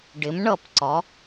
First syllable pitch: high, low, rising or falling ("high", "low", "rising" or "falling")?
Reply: rising